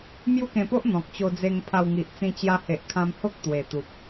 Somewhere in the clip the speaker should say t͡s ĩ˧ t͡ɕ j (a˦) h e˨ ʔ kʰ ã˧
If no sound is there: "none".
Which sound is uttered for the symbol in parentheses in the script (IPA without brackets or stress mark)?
a˧